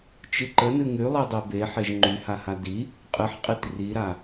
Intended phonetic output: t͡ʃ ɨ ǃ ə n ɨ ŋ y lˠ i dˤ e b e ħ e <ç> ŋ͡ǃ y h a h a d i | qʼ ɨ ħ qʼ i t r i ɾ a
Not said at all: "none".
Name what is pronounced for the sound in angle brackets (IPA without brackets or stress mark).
ʒ